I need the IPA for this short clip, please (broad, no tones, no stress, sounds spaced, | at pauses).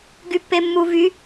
ɡ y pː e mː u v y